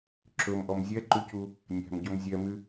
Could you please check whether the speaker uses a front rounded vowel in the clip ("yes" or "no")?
yes